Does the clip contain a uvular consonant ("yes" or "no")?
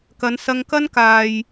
no